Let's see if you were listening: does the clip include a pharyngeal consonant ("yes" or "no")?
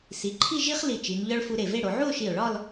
yes